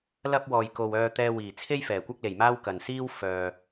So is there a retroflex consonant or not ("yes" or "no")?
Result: no